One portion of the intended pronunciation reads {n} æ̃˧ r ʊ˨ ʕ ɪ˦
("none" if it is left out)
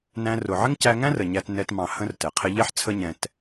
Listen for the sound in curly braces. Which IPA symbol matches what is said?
n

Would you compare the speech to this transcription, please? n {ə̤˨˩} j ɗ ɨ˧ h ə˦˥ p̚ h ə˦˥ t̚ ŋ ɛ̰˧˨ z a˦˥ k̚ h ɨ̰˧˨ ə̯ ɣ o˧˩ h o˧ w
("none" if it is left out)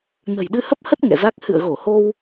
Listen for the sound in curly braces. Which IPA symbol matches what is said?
ə̤˨˩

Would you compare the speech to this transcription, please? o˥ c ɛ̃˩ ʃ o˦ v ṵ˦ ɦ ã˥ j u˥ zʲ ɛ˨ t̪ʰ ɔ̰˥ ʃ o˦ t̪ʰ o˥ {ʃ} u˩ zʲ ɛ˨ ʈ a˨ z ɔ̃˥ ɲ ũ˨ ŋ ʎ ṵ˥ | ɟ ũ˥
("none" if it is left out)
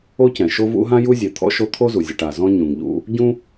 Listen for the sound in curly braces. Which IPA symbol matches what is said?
z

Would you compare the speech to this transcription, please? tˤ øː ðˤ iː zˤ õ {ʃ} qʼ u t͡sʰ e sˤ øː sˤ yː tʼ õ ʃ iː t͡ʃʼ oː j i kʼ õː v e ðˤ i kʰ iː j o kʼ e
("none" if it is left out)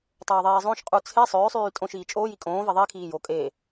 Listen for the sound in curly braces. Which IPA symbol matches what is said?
ʃ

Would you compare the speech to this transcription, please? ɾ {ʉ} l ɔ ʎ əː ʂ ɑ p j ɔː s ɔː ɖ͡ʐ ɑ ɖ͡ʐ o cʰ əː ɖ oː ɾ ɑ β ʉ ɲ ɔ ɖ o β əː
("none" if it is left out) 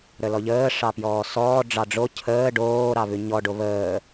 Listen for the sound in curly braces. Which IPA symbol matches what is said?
ə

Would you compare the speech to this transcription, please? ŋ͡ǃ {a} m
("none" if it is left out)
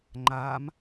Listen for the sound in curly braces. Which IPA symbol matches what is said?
a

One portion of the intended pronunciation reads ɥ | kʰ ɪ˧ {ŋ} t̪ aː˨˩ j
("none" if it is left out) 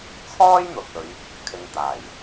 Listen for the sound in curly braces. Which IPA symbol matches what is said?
ŋ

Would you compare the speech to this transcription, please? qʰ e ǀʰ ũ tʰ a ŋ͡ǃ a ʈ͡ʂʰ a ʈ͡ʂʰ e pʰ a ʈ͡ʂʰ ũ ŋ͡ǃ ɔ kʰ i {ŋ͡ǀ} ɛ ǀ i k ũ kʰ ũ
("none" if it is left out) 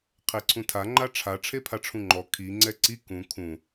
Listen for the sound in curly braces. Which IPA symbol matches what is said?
ŋ͡ǀ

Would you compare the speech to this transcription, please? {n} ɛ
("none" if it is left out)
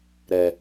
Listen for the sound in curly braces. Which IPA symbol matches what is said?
ɾ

